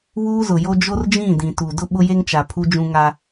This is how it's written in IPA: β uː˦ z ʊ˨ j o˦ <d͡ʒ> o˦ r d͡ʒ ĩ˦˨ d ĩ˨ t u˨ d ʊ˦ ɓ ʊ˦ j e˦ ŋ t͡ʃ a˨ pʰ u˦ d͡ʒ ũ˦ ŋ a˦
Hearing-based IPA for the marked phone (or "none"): d͡ʒ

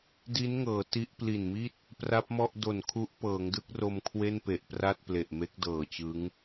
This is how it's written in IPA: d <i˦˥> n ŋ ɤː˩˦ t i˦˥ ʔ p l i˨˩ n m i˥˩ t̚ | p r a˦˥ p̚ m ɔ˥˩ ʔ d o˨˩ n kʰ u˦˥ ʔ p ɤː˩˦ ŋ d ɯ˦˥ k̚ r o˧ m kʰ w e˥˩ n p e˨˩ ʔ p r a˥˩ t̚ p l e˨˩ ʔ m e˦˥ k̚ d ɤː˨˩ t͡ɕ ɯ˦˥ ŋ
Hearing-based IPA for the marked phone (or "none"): i˦˥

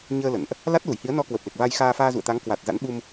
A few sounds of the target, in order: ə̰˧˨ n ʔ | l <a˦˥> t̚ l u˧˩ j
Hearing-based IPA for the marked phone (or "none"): a˦˥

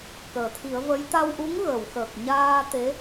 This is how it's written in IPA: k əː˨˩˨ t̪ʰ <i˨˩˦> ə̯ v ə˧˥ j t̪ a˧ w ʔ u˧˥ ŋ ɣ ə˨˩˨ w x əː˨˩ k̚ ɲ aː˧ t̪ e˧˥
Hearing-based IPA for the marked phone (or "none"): i˨˩˦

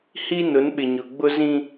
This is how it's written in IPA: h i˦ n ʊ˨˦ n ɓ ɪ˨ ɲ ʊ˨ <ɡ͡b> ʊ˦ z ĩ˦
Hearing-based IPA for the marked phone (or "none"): ɡ͡b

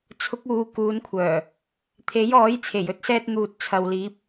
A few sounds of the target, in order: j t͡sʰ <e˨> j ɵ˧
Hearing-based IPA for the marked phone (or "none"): e˨˩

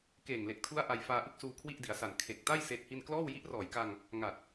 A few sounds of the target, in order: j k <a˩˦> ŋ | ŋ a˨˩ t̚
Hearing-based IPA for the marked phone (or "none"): a˧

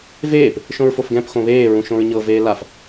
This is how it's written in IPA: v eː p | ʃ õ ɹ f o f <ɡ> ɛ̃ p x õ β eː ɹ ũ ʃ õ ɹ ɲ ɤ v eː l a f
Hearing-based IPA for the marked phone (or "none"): ɡ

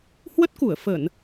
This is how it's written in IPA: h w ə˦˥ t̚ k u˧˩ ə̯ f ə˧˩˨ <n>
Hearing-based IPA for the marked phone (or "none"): n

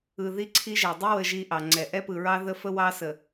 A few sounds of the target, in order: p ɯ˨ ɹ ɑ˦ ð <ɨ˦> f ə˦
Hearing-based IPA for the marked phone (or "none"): ə˦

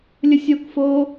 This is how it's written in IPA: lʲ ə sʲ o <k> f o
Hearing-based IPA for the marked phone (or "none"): k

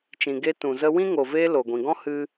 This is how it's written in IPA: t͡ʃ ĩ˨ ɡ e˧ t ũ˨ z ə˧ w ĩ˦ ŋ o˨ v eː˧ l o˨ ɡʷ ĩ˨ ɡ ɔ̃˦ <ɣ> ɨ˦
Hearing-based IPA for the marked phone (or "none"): h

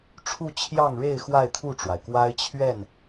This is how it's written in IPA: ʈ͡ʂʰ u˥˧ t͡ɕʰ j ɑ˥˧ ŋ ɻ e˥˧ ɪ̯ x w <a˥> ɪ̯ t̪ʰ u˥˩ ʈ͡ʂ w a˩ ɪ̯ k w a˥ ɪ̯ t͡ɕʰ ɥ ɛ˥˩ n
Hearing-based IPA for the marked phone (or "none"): a˥˧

